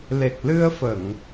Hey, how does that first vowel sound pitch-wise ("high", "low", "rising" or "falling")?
low